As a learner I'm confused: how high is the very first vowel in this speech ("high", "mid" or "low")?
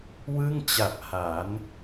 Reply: high